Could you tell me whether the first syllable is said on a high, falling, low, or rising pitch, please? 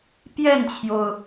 falling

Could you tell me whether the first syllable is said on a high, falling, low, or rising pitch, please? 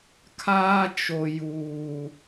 high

